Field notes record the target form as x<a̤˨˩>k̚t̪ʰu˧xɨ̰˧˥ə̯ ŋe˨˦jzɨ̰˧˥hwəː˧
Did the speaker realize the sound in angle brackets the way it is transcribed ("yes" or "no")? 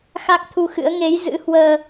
no